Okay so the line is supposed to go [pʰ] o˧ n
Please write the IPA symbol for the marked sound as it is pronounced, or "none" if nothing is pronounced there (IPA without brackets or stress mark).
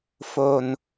f